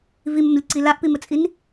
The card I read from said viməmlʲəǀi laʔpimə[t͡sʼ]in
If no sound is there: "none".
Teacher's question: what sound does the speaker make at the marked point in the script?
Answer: t͡sʼ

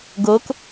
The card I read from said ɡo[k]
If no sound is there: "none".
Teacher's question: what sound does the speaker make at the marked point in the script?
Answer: k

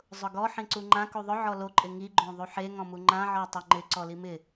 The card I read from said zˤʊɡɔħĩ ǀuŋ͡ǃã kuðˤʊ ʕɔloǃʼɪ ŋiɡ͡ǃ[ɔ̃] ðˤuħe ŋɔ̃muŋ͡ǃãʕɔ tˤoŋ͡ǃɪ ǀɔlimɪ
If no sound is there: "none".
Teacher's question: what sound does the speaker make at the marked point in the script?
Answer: õ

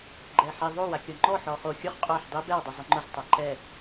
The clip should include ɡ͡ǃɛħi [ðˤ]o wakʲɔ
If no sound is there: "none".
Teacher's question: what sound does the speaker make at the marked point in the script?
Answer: ðˤ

